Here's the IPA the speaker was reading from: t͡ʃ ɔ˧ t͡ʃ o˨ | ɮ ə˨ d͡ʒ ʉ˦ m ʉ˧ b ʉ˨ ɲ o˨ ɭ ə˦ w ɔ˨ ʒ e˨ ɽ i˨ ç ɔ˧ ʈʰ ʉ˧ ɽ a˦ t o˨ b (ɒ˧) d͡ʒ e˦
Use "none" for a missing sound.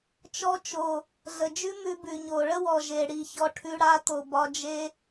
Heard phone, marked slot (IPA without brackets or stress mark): ɒ˧